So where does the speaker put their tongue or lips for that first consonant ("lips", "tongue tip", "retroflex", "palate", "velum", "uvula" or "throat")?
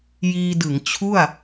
palate